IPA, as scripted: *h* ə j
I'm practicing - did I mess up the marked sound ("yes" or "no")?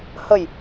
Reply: no